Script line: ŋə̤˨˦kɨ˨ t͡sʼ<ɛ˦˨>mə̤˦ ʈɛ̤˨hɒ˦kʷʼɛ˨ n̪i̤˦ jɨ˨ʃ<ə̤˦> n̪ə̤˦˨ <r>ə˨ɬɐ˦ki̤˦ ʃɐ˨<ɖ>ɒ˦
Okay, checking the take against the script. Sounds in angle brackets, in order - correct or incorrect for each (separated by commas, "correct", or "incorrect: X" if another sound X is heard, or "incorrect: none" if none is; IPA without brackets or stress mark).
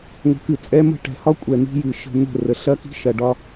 incorrect: ɛ˦, correct, correct, correct